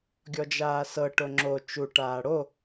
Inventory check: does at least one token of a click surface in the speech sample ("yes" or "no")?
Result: yes